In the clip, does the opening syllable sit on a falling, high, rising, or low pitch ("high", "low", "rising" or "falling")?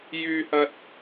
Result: low